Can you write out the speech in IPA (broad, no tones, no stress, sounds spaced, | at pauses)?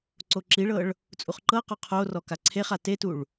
ǀ o ǁ i ɭ ɤ ɭ | t͡sʼ u χ ǃ ɤ q ɔ qʰ o r ɔ k a ǀʰ e χ a t e t u ɭ